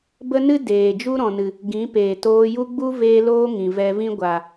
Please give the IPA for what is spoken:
b ə˦ n ɨ˦ d eː˨ d͡ʒ u˦ ɾ ɔ̃˨ n ɨ˨ | ɡ ĩ˨˦ p eː˨ t oː˧ j u˦ ɡ͡b u˦ v eː˦ l oː˦ ŋ ĩ˨ v ɛ˧ v ĩ˦ ɡʷ a˨

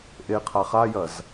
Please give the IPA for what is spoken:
ʔ e qʰ a χ a j ɐ z

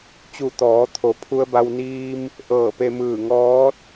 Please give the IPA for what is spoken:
t͡ɕ u˧˩ t̪ ɔː˩˧ t̪ʰ o˩ pʰ u˧ ə̯ b a˧ w n iː˧ m | ʔ ɤː˧˩ p e˧ m ɯː˧˩ ŋ ɔː˧˥ t̚

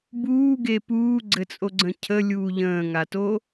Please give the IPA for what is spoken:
b uː ɡ e p uː ɡ͡ǀ ɘ t͡sʼ o ɡ͡ǀ ə̃ cʰ ə lʲ uː ʎ ə̃ː ŋ a t o

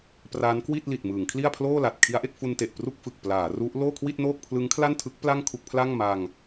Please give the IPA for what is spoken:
p r a˦˥ n k w i˥˩ t̚ l i˨˩ t̚ m ɯː˩˦ ŋ kʰ l i˥˩ a̯ pʰ l oː˥˩ l a˨˩ t̚ kʰ i˦˥ a̯ ʔ e˥˩ k̚ f u˧ n t e˨˩ ʔ p r u˥˩ k̚ f ɯ˨˩ k̚ p l aː˩˦ r u˦˥ ʔ l oː˥˩ kʰ w i˥˩ t̚ n oː˥˩ k̚ pʰ l ɯ˦˥ ŋ kʰ l a˥˩ n tʰ ɯ˦˥ k̚ p l a˥˩ ŋ kʰ u˥˩ k̚ pʰ l a˥˩ ŋ m a˧ ŋ

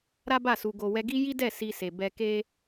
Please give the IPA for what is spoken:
ɾ a˦ b a˦˨ s u˨ ɡ o˨ w ɛ˧ ɡ i˦ j i˦ d ɛ˦˨ s i˧ s e˨ b ɛ˧ k e˦

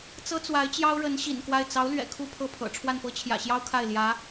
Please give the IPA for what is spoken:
t͡s ɤ˥ t͡s w a˧˥ ɪ̯ t͡ɕ j ɑ˥ ʊ̯ ɻ ə˧˥ n ɕ ḭ˨˩ n k w a˥˩ ɪ̯ t͡s ɑ˧˥ ʊ̯ l ɥ ɛ̰˨˩ kʰ u˥˧ pʰ ɤ˥˩ pʰ ɤ̰˨˩ ʈ͡ʂʰ w a˥˩ n p ɤ˥ t͡ɕʰ j ä̰˨˩ ɕ j ɑ˥ ʊ̯ kʰ a˥˩ ɪ̯ l j ä˧˥

